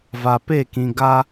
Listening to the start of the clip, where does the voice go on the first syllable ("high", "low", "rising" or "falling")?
low